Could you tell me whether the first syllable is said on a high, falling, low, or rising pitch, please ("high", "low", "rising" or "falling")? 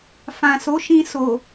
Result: low